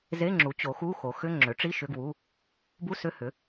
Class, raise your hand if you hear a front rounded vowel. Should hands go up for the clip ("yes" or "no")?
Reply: yes